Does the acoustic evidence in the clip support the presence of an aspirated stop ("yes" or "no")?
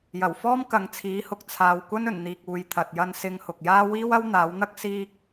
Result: yes